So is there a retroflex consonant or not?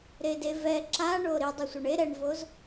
yes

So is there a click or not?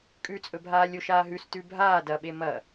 no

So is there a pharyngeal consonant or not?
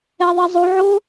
yes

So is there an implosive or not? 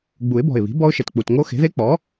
no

